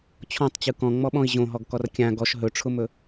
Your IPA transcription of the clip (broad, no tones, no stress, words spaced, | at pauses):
t͡ɕʰɔ̃tˤt͡ɕɯ kɔ̃ŋ͡mɔɓɔ̃i̯ ʑõɦɔɡkɔr kʲã ɡɔʃ ɦɵʈ͡ʂʰʊmɵ